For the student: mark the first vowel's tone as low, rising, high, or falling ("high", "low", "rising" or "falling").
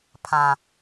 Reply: low